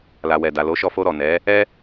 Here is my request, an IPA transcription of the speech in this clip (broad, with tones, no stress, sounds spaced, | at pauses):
l a˨ w ɛ˨ d a˨ l o˨˦ ʃ ɔ˧ f o˧ ɾ ɔ˨ n ɛ˨˦ | ɛ˦